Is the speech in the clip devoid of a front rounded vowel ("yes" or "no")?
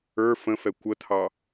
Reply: yes